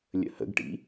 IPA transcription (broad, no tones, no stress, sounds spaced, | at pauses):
lʲ ə̰ h ə̰ ɡ ʈ ḭ